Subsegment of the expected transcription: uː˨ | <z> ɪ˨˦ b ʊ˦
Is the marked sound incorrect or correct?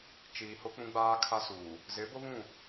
correct